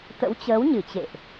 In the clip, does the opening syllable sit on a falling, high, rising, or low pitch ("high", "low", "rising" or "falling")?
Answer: rising